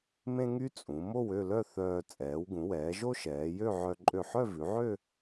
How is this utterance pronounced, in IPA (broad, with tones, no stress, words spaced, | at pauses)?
mẽ˥ŋy˥ t͡sʼũ˩˧ mo˥˧wø˥˧lœ˥˧ θœː˧ t͡sʼɛː˩˧wɡũ˩˧wɛː˩˧ ʒo˥ʃɛː˩˧jø˥˧ʕœ˧ ǃʼø˧˩ħœ˥˧vʉ˩˧ʕø˥˧